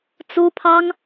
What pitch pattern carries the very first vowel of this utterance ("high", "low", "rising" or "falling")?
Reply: high